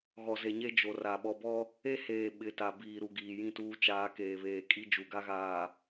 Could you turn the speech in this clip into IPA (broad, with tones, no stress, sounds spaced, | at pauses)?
ɣ ɔ˨ z e˨ ɲ e˦ d͡ʒ o˨ r a˨ ɓ ɔ˨ b ɔ˦ | e˦ h eː˨ ɓ ɪ˨˦ t a˨ b iː˨ ɾ u˨ ɡ iː˨ j ĩ˦˨ t uː˦ t͡ʃ aː˦ k eː˨ β eː˨ kʼ i˦ d͡ʒ u˨ ɡ a˦ ɣ aː˨